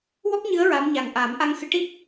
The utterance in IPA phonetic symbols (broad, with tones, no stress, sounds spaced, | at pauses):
w ɔ˦˥ k̚ ɲ ɨ˧˥ ə̯ ɹ a˧˥ m ɲ a˨˩ ŋ ʔ a˨˩˦ m ʔ a˧ ŋ x ɨ˧˥ ʈ i˦˥ p̚